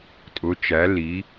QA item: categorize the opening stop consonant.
ejective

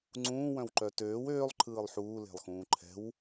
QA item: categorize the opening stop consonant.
click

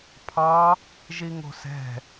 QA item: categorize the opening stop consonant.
aspirated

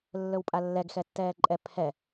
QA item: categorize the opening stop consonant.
ejective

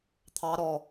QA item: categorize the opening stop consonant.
aspirated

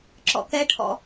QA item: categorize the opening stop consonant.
click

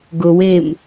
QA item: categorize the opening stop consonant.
plain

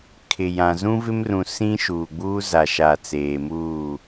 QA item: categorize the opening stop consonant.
aspirated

